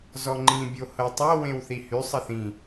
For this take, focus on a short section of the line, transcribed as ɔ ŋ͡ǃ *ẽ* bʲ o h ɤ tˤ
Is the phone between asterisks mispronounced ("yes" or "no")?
yes